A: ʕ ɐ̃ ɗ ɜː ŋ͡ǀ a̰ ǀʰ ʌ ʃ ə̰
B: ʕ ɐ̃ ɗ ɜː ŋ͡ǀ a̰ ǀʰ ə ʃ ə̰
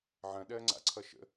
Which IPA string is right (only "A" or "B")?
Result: A